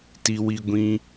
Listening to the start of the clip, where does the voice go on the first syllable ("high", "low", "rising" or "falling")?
high